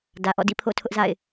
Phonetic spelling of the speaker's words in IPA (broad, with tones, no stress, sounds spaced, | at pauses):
d ä˨ ʔ ɔ̰˦˨ d ḭ˦˨ pʰ o̰˦˨ tʰ ʊ˦ ʔ z a̰˦˨ ɪ̯